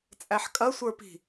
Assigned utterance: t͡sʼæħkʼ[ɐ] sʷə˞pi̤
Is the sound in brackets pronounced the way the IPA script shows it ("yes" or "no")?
yes